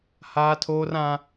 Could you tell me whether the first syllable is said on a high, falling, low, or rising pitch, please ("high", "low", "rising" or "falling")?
high